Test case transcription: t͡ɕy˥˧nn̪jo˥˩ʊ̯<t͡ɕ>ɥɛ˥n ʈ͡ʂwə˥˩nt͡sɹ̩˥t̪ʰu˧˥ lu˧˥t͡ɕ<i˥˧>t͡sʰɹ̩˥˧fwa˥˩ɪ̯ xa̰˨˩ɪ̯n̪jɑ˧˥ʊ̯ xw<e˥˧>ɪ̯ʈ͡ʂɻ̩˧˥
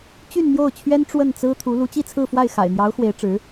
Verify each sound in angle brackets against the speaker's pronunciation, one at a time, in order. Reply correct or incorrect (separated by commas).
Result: incorrect, correct, incorrect